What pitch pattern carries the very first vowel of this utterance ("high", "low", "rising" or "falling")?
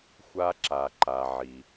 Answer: high